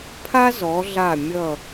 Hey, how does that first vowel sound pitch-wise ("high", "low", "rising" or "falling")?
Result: high